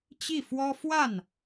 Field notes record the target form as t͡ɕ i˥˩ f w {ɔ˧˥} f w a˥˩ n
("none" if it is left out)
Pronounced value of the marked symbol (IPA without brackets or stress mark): ɔ˥